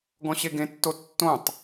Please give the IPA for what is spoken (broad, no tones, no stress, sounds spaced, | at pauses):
ɡ ɔ̃ ɕ e ɡ ẽ tː o tː õ tˤ